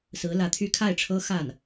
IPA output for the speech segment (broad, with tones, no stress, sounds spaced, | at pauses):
s ɹ̩˧˥ l ä˧˥ t̪ʰ y˥ kʰ a˥˩ ɪ̯ ʈ͡ʂʰ ɤ˥ x a˥˩ n